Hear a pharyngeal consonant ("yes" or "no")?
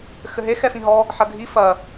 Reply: yes